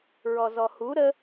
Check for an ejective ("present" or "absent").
absent